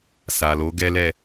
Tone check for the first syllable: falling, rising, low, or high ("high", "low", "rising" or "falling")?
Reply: low